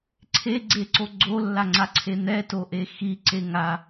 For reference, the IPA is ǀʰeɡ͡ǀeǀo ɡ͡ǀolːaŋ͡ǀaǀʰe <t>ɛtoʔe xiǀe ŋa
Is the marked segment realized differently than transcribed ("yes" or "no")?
yes